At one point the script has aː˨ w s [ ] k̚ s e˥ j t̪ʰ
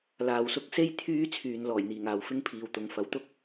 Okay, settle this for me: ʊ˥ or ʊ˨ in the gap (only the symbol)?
ʊ˥